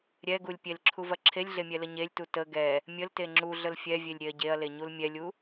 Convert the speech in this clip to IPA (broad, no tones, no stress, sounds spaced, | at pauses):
ɾʲ ɛ ɡ u lʲ pʲ e l ǁʰ u v ɐ ǁʰ e lʲ ɮ e mʲ ɛ l ə ɲ e lʲ t u t ə ɡ ɛ | mʲ ə l t e ŋ͡ǁ u ɮ ə l fʲ ɛ vʲ e lʲ ɾʲ e ɐ̯ ɟ e ɐ̯ l e ɲ u l mʲ ɛ lʲ u